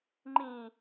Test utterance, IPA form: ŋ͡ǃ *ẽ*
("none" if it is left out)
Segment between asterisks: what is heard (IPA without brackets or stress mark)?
ĩ